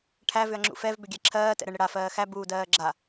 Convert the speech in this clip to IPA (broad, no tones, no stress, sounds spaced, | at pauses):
ʈʰ æ v ʏ ɐ̯ ŋ͡ǁ ṵ f ɛ v b ʏ ɡʲ ɛ ǁʰ ɜː t ɛ̰ ɾ ə ɳ ɾ ə ɽ a f ɜː x æ b uː d ɜː ɡ͡ǁ a